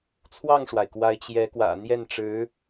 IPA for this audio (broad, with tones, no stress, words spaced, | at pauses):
t͡sʰwɑ˥˩ŋʂwa˩ɪ̯kwa˧˥ɪ̯ t͡ɕjɛ˧˥kwä̰˨˩ n̪jɛ˥˩nʈ͡ʂɻ̩˧˥